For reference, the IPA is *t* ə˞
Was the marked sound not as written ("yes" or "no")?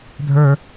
yes